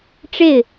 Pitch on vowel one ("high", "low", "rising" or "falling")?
falling